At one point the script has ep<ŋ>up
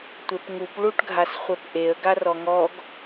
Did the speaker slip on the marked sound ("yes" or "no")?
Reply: no